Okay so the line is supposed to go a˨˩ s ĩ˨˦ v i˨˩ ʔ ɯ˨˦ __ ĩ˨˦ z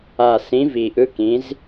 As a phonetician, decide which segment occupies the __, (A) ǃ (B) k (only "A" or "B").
B